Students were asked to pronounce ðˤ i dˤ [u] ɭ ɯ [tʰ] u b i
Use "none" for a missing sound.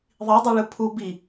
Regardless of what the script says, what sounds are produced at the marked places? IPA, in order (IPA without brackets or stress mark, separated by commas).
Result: u, pʰ